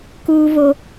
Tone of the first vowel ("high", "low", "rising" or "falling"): high